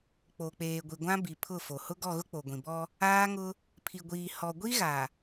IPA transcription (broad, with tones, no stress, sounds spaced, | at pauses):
k͡p o˨ k͡p eː˨ ɡʷ i˨ ɡʷ ã˦ b i˨ pʰ ʊ˦˨ f o˨ h ʊ˦ ɡ ɔ˦˨ ɣ ʊ˦ k͡p o˨ ɡʷ ĩ˨ b ɔ˦ | aː˦ ŋ ʊ˦ | pʰ i˨ ɡʷ iː˨ h ɔ˨ ɡʷ i˦ ɣ a˨